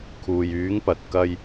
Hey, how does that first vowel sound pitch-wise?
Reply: low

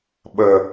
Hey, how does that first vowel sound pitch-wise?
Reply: low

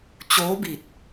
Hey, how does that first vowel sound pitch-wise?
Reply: rising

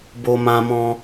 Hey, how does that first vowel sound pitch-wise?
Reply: high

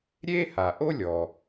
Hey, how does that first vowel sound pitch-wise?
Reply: high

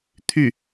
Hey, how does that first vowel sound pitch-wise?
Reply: falling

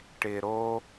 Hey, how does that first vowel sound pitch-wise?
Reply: low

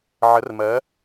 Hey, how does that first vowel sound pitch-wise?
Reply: rising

